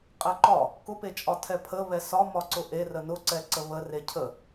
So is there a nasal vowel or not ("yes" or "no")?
no